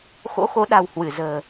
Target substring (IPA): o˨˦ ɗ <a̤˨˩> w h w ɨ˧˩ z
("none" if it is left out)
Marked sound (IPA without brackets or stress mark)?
a̤˨˩